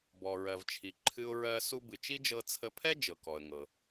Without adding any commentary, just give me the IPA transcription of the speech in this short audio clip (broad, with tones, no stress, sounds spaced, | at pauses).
b ɔ˩ ɹ ɜ˩ v t͡ʃʰ i˩ ǃʰ ɨ˧ ʊ̯ ɹ ɜ˧ s u˧ b ɨ˩ t͡ʃ i˥ d͡ʒ ɤ˧ t͡sʰ ə˧ pʰ ɛ˥ d͡ʒ ɤ˩ k ɔ˩ ə̯ ŋ ɤ˩